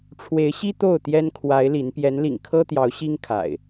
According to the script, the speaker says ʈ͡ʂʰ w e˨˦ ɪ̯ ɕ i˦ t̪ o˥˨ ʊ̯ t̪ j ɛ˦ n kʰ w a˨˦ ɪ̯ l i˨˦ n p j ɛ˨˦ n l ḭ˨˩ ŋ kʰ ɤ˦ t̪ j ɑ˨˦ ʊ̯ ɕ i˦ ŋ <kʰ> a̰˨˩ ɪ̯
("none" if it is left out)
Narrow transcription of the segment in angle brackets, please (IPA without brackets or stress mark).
kʰ